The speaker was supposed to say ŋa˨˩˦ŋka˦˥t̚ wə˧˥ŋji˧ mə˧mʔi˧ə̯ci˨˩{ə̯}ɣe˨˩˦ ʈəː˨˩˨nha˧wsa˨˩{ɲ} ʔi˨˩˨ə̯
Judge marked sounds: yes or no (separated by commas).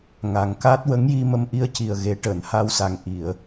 yes, no